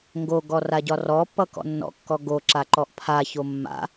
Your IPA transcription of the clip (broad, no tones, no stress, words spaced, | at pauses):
ŋɡoɡɔ raɟɒrɔpːʌ kɔ̰nːɔ̰kːɔ ɡoǁa ǃɔʔpʰaço mːa̰